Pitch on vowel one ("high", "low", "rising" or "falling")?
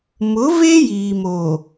rising